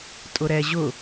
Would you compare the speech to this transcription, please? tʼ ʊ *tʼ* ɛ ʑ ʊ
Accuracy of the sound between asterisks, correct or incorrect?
incorrect